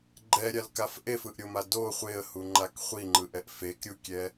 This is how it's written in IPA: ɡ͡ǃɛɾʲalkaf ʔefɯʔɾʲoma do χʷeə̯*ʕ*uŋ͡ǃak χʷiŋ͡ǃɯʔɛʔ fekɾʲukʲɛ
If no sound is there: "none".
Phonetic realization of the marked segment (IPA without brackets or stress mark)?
h